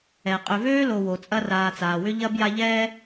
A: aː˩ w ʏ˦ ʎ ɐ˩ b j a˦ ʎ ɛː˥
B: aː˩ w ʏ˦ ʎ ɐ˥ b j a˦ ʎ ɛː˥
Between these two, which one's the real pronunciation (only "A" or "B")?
B